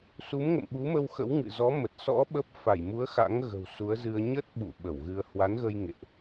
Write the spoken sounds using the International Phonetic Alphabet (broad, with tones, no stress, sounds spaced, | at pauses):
s u˨˦ m ŋ ə̰˧˨ m ɓ u˨˦ m ə˧ w x ə̰˧˥ w ŋ ɨ̰˧˨ z ɔ˨˦ m ə˨˩ t̚ s ɔ̰˧˥ ɓ ə˦˥ p̚ f a˧˩ j m u˨˦ ə̯ x a̰˧˥ ŋ ɣ ə̤˨˩ w s u˨˦ ə̯ z ɨ˧ ə̯ ɲ ə˦˥ t̚ ɓ ṵ˧˨ ɓ ə˧˩ w ɣ ɨ˧ ə̯ h w a˨˦ n ɣ ə˧ j ŋ ḛ˧˨ ʔ